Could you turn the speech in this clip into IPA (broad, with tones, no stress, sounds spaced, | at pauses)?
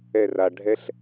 ɛ˧˩ r a˩ ɖʱ ɛ˦˥ ɬ